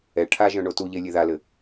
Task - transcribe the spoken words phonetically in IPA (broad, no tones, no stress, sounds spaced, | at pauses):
ɛ ʈʰ a ʒ œ̃ ɳ o t u ʎ e lʲ e ð a l ɘ